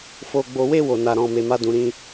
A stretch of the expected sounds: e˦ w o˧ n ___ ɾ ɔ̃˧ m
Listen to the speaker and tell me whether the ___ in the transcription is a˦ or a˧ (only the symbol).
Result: a˧